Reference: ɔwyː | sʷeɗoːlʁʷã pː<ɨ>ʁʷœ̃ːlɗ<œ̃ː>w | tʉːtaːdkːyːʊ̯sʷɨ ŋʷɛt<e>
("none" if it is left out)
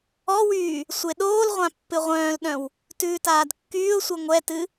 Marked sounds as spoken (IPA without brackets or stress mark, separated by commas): ɨ, œ̃, ɨ